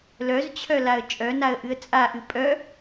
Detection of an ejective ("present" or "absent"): present